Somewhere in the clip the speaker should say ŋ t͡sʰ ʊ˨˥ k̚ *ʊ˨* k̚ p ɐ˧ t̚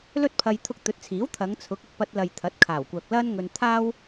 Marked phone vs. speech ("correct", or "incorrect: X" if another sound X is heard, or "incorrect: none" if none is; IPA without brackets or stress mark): correct